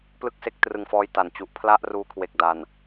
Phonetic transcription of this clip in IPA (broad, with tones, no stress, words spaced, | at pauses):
plɯ˥˩k̚se˦˥k̚ trɯ˧ŋfɔː˦˥j ta˨˩nt͡ɕu˨˩ʔ pʰla˥˩ʔruː˦˥kʰwe˨˩k̚ da˨˩n